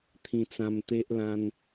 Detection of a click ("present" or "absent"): absent